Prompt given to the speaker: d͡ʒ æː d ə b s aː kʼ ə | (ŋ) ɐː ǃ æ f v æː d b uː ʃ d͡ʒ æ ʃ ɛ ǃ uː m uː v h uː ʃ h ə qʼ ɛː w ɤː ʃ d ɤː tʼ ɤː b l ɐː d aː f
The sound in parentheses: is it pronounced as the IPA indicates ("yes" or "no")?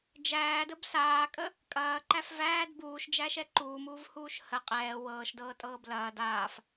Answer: no